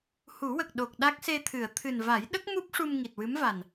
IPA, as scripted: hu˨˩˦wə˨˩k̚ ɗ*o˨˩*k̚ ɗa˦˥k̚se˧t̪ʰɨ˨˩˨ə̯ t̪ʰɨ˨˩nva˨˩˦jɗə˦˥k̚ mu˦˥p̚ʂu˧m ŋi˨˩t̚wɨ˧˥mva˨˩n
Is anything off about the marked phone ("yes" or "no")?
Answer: no